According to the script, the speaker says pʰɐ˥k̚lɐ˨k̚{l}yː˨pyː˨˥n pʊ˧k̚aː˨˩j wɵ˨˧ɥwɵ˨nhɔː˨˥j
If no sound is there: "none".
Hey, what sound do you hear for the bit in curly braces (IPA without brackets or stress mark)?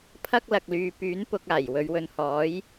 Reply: l